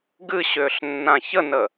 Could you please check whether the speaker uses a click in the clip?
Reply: no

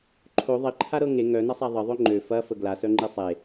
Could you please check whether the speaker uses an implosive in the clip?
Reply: no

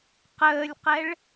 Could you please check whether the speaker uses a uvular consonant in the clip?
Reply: yes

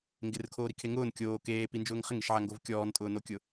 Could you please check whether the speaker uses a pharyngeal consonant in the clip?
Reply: yes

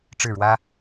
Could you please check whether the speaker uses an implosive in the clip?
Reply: no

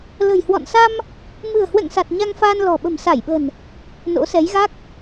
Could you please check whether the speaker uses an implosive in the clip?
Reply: yes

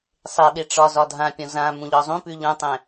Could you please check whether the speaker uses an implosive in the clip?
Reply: yes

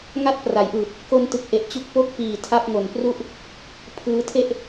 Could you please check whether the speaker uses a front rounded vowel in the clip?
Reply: no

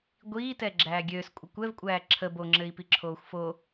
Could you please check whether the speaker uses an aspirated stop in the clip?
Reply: yes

